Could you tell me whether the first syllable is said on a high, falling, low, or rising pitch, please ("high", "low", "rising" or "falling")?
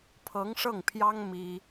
rising